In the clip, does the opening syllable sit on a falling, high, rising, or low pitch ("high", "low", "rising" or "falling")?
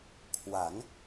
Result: rising